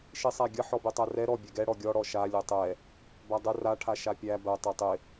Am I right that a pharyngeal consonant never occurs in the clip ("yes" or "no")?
no